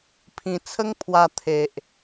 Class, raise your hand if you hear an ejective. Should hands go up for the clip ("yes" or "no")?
no